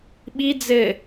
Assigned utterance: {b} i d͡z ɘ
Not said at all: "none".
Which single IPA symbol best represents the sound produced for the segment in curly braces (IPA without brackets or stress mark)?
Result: ɓ